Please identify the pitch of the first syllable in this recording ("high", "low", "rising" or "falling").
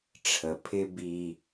low